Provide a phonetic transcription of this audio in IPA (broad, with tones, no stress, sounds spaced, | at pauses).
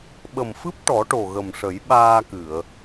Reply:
ɓ ə˨˩ m f ɨ˦˥ p̚ ʈ ɔ˨˩˦ ʈ o˨˩ ɣ ə˨˩ m ʂ ə˨˩˦ j ɓ aː˧ k ɨ˨˩˨ ə̯